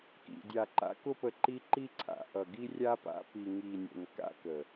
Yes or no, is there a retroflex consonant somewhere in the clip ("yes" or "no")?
no